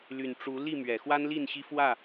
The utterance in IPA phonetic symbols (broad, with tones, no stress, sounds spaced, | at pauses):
l y˨˩ n ʈ͡ʂ u˨˦ l i˥˨ m ɥ ɛ˨˩ x w a˦ n l i˥˨ n ɕ i˦ f w ä˥˨